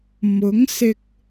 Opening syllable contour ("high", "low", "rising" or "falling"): rising